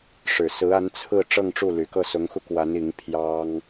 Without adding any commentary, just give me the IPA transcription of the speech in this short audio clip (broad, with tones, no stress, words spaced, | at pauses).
ʂɻ̩˨˩sɹ̩˧˥ a˧˥n t͡sʰɹ̩˥˧ ʈ͡ʂɤ˥˧ŋʈ͡ʂu˥˩ ly˨˩kɤ˥˩ sʊ˧˥ŋxu˧kwa˧˥n i˧˥ŋ pʰjɑ˥ŋ